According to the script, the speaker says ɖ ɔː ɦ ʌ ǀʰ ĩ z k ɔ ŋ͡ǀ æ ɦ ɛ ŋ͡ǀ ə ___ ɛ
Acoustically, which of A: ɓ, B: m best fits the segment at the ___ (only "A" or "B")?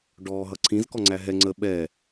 A